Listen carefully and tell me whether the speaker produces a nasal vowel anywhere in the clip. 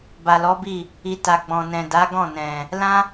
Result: yes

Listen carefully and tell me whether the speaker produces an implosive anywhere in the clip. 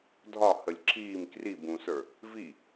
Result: no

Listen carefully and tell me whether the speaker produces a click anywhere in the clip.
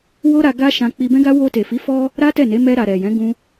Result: no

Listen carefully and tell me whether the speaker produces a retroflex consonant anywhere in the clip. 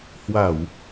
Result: no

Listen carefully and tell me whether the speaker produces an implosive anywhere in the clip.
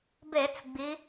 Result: no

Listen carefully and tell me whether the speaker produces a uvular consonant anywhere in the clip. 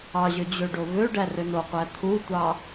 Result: yes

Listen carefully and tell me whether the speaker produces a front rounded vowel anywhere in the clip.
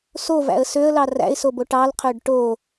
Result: yes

